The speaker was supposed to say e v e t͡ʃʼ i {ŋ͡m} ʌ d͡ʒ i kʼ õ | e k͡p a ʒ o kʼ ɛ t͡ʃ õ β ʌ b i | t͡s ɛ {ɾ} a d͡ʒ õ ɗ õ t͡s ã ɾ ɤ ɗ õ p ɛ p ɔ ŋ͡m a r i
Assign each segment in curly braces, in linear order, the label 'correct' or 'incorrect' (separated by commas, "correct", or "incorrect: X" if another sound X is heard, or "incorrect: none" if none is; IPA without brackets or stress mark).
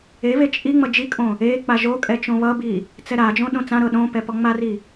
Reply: correct, correct